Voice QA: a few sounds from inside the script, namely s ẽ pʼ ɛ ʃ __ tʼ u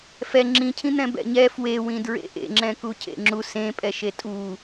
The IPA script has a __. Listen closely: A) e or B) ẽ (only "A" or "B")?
A